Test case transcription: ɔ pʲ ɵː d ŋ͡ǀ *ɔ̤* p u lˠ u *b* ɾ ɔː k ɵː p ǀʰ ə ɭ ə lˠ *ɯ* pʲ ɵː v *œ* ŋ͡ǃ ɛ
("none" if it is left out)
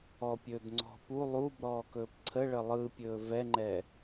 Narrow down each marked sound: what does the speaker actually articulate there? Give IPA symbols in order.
ɔ̤, b, ɯ, ɛ

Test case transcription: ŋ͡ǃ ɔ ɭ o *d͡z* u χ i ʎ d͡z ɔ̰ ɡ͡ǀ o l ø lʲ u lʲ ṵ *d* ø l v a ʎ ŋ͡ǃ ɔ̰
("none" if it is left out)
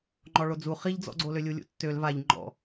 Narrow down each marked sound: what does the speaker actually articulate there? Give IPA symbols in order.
d͡z, tː

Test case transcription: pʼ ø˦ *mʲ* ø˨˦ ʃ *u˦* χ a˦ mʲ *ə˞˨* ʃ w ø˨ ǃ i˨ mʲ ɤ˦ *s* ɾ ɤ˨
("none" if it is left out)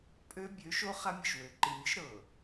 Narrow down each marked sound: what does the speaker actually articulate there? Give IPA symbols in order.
bʲ, o˦, ə˨, ʃ

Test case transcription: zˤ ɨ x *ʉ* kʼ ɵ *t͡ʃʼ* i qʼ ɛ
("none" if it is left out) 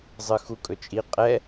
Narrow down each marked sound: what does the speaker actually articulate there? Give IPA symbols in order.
u, t͡ʃʼ

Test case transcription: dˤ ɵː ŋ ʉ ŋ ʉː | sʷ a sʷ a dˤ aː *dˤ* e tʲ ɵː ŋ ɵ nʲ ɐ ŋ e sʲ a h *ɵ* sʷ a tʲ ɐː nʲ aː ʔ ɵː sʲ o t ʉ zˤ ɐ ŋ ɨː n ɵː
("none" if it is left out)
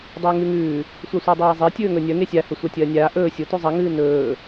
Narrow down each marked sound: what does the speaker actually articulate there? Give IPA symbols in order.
zˤ, ɵ

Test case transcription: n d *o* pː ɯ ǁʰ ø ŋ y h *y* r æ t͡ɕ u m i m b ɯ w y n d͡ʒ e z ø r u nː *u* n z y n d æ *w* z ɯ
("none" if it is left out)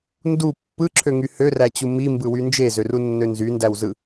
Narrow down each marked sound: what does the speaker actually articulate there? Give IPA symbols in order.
u, ø, ø, w

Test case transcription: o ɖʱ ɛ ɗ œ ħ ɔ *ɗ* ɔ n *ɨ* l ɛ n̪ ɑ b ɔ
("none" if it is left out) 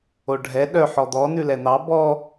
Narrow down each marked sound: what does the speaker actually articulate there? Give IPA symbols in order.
d̪, ʉ

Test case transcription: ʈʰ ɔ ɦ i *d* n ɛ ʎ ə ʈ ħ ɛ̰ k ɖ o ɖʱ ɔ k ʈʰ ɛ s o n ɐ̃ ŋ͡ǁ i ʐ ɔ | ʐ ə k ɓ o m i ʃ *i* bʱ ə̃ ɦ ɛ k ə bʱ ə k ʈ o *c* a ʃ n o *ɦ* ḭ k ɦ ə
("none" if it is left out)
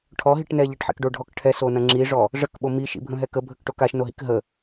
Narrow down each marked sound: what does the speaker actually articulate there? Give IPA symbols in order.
ʈ, ḭ, k, ɦ

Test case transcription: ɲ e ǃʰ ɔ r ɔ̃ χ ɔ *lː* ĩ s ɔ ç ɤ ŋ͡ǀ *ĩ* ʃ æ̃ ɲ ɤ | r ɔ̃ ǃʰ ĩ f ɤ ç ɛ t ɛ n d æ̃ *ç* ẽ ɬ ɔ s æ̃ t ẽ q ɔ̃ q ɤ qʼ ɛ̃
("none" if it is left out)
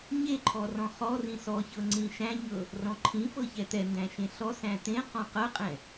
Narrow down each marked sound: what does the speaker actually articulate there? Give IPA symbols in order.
r, ĩ, ʃ

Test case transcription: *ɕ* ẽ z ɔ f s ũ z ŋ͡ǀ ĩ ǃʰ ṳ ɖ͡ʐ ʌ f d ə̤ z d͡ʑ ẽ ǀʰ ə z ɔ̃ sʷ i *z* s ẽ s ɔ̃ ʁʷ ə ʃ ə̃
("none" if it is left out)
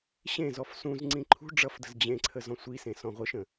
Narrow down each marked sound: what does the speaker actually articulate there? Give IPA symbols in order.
ɕ, none

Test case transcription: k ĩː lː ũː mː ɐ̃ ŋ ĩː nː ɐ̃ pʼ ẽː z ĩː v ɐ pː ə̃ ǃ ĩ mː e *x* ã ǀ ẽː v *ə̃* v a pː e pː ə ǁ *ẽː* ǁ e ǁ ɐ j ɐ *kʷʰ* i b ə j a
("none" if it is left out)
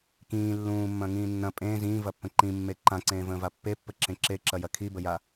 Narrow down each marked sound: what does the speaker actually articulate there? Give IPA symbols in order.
ǃ, ə̃ː, ẽ, kʰ

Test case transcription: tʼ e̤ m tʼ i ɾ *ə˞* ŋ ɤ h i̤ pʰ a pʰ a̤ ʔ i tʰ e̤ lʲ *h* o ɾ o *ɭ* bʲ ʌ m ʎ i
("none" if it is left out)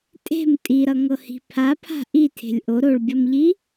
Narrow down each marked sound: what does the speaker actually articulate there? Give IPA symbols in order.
ʌ, ʔ, ɭ

